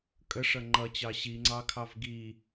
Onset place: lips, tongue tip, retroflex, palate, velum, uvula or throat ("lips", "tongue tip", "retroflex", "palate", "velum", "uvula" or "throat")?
velum